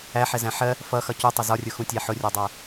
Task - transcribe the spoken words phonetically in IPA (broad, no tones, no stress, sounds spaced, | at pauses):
æ ħ ɛ z æ̃ ħ ɜ | f ʌ x ʌ c u tˤ ʌ z ɒ rʲ ʊ x ũ tʲ æ ħ ʊ rʲ ɒ dˤ æ